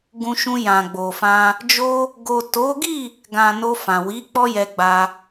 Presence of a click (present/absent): absent